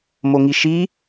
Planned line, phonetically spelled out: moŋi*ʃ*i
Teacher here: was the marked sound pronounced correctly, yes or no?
yes